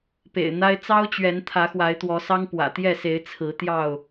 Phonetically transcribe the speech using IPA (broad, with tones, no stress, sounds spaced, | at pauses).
p ḛ˨˩ ɪ̯ n̪ a˦ ɪ̯ t͡s ɑ˦ ʊ̯ t͡ɕ ɥ ɛ˨˦ n t̪ʰ ä˨˦ x w a˨˦ ɪ̯ t̪ w ɔ˨˦ s ɑ˦ ŋ p w ä̰˨˩ t̪ j ɛ˥˨ s e˨˦ ɪ̯ t͡sʰ ɹ̩˨˦ t̪ j ɑ˥˨ ʊ̯